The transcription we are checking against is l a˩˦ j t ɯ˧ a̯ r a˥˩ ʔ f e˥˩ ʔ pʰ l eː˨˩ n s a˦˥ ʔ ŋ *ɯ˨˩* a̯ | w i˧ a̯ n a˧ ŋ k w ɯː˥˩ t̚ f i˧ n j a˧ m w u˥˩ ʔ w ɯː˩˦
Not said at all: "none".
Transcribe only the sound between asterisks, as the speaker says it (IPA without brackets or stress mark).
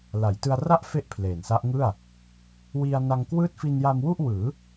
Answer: ɯ˥˩